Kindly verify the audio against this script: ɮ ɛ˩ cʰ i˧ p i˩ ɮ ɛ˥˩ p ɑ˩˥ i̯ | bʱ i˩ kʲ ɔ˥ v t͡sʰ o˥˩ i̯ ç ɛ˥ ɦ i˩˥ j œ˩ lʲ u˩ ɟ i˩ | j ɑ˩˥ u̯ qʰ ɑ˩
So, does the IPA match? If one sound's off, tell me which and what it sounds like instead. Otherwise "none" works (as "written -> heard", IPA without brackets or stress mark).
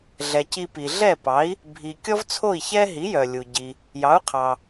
cʰ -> c